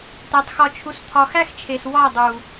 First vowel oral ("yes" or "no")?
yes